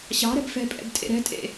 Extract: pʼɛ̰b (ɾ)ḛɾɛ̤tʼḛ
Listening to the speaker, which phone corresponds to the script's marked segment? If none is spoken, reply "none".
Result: tʼ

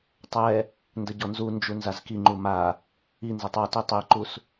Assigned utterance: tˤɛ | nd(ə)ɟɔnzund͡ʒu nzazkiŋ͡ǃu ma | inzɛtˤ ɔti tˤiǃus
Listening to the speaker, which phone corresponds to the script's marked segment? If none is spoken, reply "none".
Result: ə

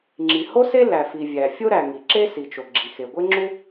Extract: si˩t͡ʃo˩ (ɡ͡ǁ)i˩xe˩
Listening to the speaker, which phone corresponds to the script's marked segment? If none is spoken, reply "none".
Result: ɡ͡ǁ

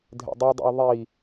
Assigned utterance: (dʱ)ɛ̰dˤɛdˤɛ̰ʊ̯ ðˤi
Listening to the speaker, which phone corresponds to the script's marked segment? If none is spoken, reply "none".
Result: dʱ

